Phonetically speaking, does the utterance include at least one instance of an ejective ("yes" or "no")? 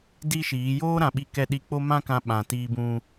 no